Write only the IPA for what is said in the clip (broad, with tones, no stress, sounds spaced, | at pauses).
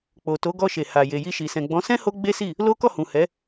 k͡p o˨ t o˨˦ ɡ ɔ˧ ʃ e˨ h a˨ j e˨ j i˧ ʃ i˨ s ɛ̃˨ ɡ͡b ɔ̃˨˦ s ɛ̃˦ h o˧ ɡ͡b e˦ s i˦˨ | l o˦ k ɔ˦˨ h ũ˨ h ɛ˨˦